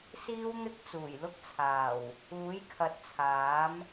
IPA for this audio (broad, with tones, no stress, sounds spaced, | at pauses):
s iː˥ w n̪ ɪ˥ k̚ t͡s uː˨˩ j l ʊ˥ k̚ t͡sʰ aː˨˩ w | uː˨˥ j kʰ ɐ˨˥ t̚ t͡sʰ aː˨˥ m